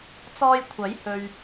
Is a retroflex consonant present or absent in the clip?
absent